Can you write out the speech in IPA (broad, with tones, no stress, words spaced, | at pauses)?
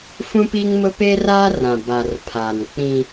fũ˦piː˦ŋmʊ˦ pe˦raː˦ rã˨ ba˨rpʰaː˨n k͡pĩ˦